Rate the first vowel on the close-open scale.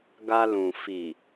open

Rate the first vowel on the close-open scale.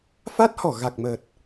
open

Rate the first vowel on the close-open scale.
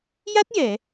open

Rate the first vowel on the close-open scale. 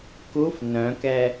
close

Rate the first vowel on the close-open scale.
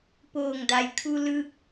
mid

